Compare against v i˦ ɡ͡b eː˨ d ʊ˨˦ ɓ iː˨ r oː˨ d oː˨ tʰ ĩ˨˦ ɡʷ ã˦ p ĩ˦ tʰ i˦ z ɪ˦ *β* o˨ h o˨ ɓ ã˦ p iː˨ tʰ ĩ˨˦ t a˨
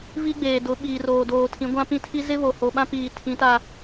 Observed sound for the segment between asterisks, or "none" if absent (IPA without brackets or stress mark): β